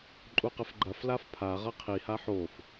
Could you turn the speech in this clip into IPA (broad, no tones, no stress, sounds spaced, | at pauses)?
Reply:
ǃʼ u q ɘ f ɡ͡ǃ ɐ f l a f pʰ a ʁ ɐ qʰ i h a ħ o f